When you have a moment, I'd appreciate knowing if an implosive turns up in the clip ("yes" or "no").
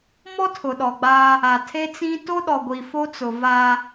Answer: yes